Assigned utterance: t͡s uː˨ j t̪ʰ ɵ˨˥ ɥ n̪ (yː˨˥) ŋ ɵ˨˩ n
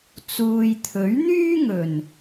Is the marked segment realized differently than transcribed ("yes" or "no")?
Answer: yes